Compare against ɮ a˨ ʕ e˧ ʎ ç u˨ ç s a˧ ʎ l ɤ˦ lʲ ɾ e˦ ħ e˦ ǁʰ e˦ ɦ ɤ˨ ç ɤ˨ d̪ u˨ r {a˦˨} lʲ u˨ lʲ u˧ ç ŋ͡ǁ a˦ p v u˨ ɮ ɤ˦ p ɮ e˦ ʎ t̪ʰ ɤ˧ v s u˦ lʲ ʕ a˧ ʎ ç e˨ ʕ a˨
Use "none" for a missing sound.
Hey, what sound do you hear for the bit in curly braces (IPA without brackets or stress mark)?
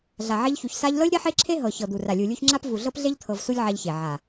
a˨